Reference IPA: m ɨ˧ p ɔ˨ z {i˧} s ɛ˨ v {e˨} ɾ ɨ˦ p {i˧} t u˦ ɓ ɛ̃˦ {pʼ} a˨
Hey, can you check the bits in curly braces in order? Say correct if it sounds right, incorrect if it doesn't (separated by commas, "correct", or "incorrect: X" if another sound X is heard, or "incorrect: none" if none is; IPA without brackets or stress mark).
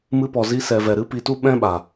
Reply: correct, incorrect: ɛ˨, correct, incorrect: ɓ